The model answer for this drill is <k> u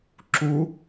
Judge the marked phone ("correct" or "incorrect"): incorrect